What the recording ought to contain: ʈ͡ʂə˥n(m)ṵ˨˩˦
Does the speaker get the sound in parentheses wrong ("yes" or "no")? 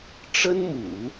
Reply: no